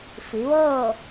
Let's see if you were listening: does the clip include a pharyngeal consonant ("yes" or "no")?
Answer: no